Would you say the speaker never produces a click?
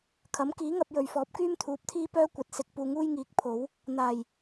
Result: yes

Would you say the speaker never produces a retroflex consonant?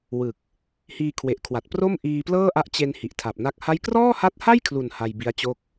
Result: yes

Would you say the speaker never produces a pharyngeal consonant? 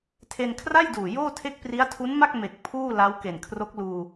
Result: yes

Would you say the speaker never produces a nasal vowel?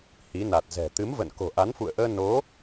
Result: yes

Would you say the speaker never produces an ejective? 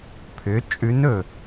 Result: no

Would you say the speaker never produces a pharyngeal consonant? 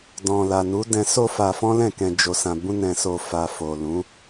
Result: yes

